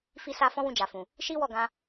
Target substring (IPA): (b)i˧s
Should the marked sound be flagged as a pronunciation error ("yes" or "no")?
yes